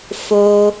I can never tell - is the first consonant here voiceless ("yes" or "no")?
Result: yes